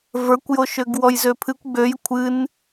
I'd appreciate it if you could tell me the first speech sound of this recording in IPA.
v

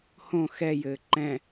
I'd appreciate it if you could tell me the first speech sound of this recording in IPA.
h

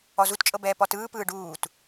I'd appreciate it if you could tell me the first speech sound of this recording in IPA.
ɔ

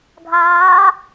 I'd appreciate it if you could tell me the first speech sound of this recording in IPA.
ɡʱ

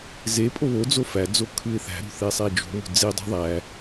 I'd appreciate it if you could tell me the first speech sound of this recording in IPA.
z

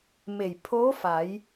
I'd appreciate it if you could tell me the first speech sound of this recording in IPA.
m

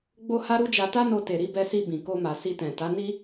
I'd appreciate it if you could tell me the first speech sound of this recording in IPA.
ɡ͡b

